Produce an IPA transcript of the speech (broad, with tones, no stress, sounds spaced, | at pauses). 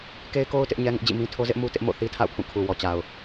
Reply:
k e˦ ɪ̯ k o˦ ʊ̯ t ɪ˦ ʔ ɲ ɛ˦ ŋ ɪ˦ ʔ d͡ʑ ḭ˦˨ m ĩ˦ tʰ o˦ z ɪ˦ ʔ m u˦ t ɪ˦ ʔ m o̰˦˨ θ i˦ tʰ a̰˦˨ ʊ̯ pʰ ũ˦˨ kʰ u˨ w ɔ˨ t͡ɕ a˨ ʊ̯